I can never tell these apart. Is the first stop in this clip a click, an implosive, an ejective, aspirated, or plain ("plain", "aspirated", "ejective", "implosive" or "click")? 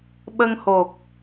implosive